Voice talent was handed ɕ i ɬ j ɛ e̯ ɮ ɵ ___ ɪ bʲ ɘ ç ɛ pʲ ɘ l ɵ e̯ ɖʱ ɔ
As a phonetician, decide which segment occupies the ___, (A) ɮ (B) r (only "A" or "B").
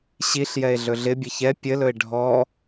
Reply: A